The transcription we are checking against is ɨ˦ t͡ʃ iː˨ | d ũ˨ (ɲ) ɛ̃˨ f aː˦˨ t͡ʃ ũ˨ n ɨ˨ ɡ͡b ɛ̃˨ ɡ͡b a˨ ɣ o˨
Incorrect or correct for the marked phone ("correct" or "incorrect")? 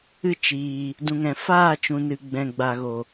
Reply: incorrect